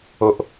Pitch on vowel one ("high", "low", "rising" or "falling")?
low